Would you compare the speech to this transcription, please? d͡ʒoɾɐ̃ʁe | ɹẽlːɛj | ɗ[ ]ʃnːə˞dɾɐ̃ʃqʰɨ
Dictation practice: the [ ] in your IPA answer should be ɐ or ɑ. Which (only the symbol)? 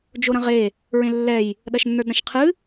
ɐ